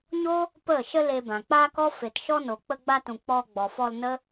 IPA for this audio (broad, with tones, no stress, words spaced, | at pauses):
ɲo˦ | pə˦˨ ʃə˦le˧bã˨ k͡pa˦kɔ˦fe˨tʃɔ˦ no˨ k͡pə˧ɡ͡ba˧tũ˨ k͡pɔ˧ɡ͡bɔ˨fɔ˧l nə˦